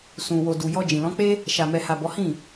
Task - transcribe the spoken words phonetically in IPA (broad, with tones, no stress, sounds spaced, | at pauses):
s ũ˨ w o˨ d u˨ j ɔ˧ d͡ʒ ĩ˨ l ɔ̃˨˦ k͡p e˦ | ʃ a˨ m ɛ˨ h a˨ b ɔ˨˦ h ĩ˦˨